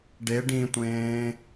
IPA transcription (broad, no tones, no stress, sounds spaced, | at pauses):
ɖ e ɖ ĩ tʷ ẽː